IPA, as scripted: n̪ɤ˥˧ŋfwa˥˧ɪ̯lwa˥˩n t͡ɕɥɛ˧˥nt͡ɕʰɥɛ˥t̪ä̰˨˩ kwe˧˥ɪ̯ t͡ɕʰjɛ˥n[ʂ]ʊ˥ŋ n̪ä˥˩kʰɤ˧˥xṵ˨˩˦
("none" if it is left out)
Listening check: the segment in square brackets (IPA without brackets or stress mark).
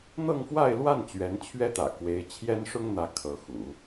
ʂ